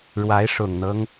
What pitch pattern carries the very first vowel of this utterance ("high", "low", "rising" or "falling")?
rising